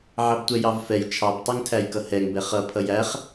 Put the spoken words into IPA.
ʕ ɑ b tʷ ɛ j ɑ v f ɛ j t͡ʃʰ ɑ b tˤ ɛ ŋ tʰ æ j k ʌ h ɛ ŋ b ɛ χ ʌ pʰ ʌ j æ χ

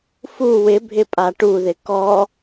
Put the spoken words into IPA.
f u w ɪ bʱ ɪ pʼ a ʈ u ð ɪ k ɔ

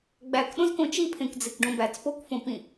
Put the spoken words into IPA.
ɡ͡b æ k ɗ õ z k õ t͡ʃ i pʰ ẽ k d͡z e k ɖ õ b æ t͡s p o k f õ p ĩ

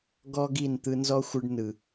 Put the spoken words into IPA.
ɡ ɔ˦ ɡ i˦˨ n t̪ ɯ˧ n z ɔ˦ xʷ ɯ˧ ɖ n ɯ˨

